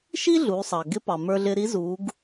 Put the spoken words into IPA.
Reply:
ʃ i˥ ɮ uː˩˧ sˤ ɑː˩ ɡ ɪ˧˥ p ɑ˩ m ə˞˧ ɮ ɪ˧ ɾ i˧˥ z uː˩˧ ɡ

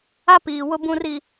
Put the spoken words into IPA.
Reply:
a˦ p iː˨ w ʊ˦ b ũ˦ r i˦

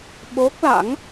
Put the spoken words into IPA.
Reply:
ɓ o˦˥ k̚ l a̰˧˥ ŋ

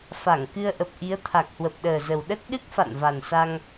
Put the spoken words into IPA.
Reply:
f a˧˩ ŋ k ɨ˧ ə̯ ʔ ə˨˩ p̚ ʔ i˨˦ ə̯ t̪ʰ a˨˩ k̚ h w ə˨˩ p̚ ɗ əː˨˩ z ə˨˩ w ɗ ə˦˥ t̚ ɗ ɨ˦˥ k̚ f a̰˧˨ n v a˨˩ n s a˧ ŋ

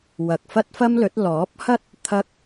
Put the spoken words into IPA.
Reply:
w ɐ˨ k̚ f ɐ˥ t̚ f ɐ˥ m l ɵ˨˥ t̚ l ɔː˨˥ p̚ h ɐ˥ t̚ | t̪ʰ ɐ˥ k̚

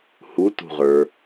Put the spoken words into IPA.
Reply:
h u t ṳ ʁ ə˞

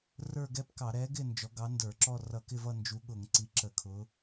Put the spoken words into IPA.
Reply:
r ə˞˥˧ ɡ ɛ˥˧ p k ɑ˧˩˧ ɾ ɛ˨˥ ɡ ɪ˥˧ n d͡ʒ ɔ˨˥ ɡ ɑ˨˥ n d ə˞˧˩˧ ǁ ɔ˥˧ r ʌ˧˩˧ k ɪ˥˧ v ʌ˥˧ n d͡ʒ u˨˥ ɠ ʊ˧˩˧ ŋ ǀ i˨˥ ǁ ə˧˩˧ kʰ ʊ˨˥

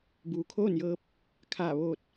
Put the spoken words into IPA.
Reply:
b uː˩ kʰ oː˥˨ n j ɤː˧ p̚ | kʰ aː˧˩ ʋ oː˧˩ t̚

